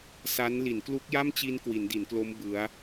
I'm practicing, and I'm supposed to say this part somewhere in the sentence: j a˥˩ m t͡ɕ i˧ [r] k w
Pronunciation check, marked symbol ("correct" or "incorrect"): incorrect